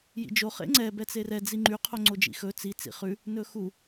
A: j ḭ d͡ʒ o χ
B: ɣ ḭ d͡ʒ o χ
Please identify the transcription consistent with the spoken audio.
A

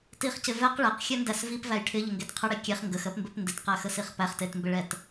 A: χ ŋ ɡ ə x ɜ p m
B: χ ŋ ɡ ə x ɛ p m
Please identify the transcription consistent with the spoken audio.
A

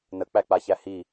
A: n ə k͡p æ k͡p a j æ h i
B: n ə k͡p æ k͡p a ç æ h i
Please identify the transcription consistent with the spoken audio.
B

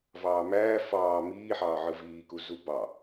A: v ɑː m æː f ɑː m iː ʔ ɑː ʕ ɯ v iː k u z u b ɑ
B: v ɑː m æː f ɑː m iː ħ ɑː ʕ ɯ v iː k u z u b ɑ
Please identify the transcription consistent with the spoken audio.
B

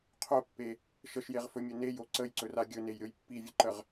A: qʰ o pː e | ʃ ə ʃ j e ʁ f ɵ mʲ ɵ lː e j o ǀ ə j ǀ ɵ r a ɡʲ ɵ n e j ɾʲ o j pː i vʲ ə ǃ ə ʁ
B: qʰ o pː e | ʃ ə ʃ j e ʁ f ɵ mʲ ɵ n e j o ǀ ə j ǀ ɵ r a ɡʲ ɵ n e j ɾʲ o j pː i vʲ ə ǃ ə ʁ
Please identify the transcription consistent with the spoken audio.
B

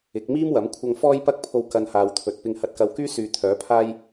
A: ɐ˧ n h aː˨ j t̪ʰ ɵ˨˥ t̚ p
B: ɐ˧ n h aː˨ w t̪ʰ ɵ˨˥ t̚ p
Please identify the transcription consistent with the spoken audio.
B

